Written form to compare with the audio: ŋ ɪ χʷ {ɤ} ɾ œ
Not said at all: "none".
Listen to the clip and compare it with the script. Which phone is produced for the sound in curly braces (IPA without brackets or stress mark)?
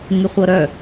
ɤ